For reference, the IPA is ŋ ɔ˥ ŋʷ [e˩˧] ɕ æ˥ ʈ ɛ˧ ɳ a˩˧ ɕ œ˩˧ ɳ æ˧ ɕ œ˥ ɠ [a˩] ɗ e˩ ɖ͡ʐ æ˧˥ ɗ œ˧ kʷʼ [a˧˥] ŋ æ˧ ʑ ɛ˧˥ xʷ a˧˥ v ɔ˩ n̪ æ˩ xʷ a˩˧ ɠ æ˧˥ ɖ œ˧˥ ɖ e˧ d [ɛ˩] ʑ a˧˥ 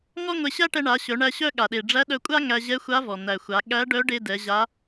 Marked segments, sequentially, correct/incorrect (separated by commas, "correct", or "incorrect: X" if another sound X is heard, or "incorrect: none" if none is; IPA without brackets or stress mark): incorrect: e˧, correct, incorrect: a˥, incorrect: ɛ˩˧